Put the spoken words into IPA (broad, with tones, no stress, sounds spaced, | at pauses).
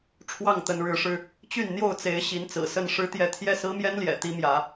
ʈ͡ʂʰ w ɑ˥˨ ŋ t̪ ə˨˦ n ɻ ɻ̩˨˦ ʂ ɻ̩˧ | t͡ɕ y˥˨ n n̪ j o˥˨ ʊ̯ t͡s e˨˦ ɪ̯ ɕ i˨˦ n t͡s ɹ̩˨˩ s ə˥˨ n ʂ ɻ̩˦ t̪ j ɛ˥˨ t̪ʰ j ɛ˥˨ s ɹ̩˦ m j ɛ˦ n l j ɛ̰˨˩ t̪ i˦ m j ä˨˦